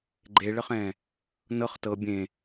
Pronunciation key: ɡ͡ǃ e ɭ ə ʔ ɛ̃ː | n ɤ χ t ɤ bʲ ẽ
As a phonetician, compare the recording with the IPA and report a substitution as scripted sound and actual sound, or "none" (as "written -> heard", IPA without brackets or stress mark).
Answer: ʔ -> χ